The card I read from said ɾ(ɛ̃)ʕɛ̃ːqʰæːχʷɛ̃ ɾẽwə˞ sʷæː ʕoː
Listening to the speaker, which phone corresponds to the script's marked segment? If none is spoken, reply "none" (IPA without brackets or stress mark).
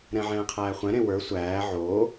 ɛ̃